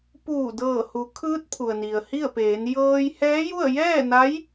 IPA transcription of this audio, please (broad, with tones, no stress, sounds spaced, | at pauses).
p uː˧˩ d ɤː˧˩ h u˩˧ kʰ ɯː˧˥ t̚ pʰ u˩ ə̯ n i˩ ə̯ h i˥˨ ə̯ p eː˩˧ n j ɤː˧ j h ɛː˧˥ j u˥˨ ə̯ j ɛː˥˨ n a˧˥ j